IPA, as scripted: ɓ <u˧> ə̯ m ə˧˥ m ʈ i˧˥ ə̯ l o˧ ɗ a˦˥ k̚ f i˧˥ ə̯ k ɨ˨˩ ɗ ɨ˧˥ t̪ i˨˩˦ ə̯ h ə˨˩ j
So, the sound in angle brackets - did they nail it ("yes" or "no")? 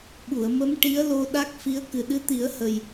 no